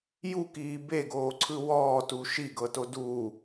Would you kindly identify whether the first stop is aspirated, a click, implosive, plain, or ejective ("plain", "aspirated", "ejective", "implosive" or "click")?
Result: plain